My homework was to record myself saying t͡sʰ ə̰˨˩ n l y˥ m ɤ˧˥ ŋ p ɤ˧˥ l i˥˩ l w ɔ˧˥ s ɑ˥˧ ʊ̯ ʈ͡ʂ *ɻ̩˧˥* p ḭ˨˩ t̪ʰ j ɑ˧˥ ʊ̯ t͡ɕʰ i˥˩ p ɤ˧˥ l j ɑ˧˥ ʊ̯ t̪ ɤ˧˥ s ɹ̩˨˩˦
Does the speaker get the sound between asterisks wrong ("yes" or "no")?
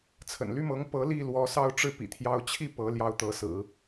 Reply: yes